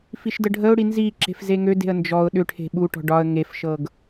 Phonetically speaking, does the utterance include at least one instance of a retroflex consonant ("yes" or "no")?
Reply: yes